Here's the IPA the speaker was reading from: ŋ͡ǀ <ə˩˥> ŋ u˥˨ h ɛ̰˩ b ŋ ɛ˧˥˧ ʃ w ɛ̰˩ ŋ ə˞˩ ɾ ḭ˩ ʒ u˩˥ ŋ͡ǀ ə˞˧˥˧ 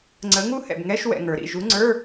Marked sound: correct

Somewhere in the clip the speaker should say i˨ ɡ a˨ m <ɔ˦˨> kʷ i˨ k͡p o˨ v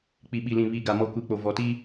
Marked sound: incorrect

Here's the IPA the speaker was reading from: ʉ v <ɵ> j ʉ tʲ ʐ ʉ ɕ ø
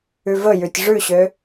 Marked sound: correct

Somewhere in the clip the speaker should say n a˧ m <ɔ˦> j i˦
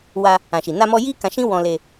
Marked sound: incorrect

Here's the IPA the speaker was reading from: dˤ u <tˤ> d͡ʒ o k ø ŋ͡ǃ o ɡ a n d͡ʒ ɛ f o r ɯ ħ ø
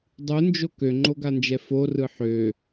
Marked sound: incorrect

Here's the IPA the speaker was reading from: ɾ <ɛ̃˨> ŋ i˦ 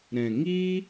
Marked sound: correct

